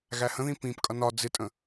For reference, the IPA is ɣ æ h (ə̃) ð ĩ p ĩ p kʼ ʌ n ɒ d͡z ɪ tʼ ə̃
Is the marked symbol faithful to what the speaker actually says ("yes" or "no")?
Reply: yes